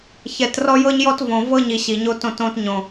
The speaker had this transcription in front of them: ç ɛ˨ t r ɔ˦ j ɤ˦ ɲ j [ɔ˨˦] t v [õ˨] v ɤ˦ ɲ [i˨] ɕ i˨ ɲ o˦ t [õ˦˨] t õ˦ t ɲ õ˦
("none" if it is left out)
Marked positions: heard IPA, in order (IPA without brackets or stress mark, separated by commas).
ɔ˦, õ˨, i˨, õ˦˨